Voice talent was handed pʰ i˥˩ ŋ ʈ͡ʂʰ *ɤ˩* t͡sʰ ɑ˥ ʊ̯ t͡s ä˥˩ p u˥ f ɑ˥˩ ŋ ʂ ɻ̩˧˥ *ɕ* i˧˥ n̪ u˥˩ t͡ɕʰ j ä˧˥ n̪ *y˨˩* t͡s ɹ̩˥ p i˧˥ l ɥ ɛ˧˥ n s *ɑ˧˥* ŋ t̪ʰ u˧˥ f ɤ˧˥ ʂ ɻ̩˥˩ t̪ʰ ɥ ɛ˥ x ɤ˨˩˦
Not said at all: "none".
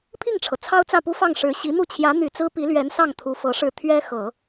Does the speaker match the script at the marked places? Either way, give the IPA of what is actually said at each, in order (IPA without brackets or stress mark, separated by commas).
ɤ˩, ɕ, y˨˩, ɑ˥˩